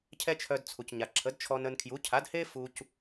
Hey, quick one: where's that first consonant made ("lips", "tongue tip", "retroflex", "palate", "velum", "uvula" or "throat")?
palate